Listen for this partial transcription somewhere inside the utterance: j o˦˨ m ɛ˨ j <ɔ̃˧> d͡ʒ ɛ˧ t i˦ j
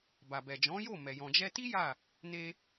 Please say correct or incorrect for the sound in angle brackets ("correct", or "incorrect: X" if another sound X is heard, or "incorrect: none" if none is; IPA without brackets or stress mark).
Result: incorrect: ɔ̃˨